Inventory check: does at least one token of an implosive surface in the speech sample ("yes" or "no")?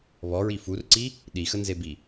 yes